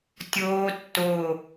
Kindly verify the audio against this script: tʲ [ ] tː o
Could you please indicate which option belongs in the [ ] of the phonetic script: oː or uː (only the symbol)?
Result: oː